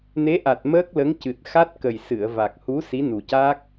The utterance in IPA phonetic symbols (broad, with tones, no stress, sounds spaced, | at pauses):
n e˧˥ ʔ a˨˩ t̚ m əː˦˥ k̚ l ə˧˥ ŋ c ɨ˨˩ t̚ x a˦˥ t̚ k ə˨˩ j s ɨ˨˩˨ ə̯ v a˨˩ k̚ h u˧˥ s i˧˥ n u˨˩ c a˦˥ k̚